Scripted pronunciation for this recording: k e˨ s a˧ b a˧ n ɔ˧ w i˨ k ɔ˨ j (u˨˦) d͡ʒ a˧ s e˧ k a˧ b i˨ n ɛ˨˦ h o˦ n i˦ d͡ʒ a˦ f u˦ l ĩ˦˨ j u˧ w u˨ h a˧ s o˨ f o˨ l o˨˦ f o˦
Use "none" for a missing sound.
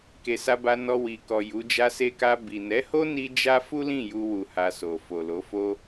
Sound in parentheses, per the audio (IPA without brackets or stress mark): u˨˦